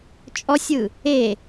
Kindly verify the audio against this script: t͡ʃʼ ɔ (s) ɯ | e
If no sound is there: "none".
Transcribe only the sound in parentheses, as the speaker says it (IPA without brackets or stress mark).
sʲ